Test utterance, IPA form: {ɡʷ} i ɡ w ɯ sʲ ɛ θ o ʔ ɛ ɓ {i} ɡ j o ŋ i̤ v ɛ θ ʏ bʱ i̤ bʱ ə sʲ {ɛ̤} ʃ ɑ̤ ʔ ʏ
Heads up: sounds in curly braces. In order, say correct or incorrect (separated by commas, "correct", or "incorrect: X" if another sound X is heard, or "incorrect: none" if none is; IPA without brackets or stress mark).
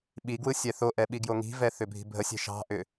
incorrect: ɓ, correct, correct